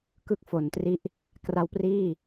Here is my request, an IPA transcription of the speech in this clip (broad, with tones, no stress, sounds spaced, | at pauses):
k ɯ˦˥ k̚ f o˩˦ n t r i˦˥ ʔ | k r a˦˥ w p r iː˥˩